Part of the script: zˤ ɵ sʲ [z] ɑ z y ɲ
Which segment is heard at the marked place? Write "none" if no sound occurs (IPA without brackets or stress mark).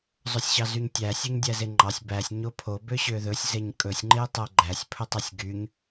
ɕ